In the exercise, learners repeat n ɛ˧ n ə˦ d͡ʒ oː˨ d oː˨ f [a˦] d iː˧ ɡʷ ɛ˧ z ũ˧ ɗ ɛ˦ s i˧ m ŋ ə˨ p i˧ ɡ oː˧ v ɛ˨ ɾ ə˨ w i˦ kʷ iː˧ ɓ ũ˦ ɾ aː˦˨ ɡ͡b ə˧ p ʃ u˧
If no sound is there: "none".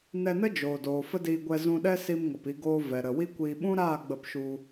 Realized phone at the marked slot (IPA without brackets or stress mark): ə˦